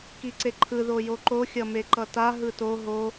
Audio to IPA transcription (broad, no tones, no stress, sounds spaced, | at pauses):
k i ǀ e ǃʰ ɯ ð o j o ǃ o xʲ ʌ m e ǃ ʌ t a ɦ ɯ t o ɦ o